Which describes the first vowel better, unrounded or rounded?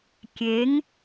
unrounded